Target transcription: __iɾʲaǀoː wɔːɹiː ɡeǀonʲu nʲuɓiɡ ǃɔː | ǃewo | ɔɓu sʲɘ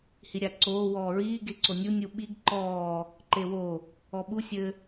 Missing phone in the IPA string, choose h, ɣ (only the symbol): h